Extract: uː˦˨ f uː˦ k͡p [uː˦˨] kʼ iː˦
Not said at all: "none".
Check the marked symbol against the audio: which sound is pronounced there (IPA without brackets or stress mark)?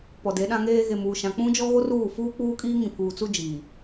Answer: uː˦